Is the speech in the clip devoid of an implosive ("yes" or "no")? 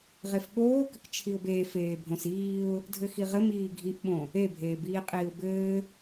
no